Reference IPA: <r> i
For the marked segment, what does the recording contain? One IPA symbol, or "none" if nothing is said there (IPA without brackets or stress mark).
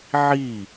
ʕ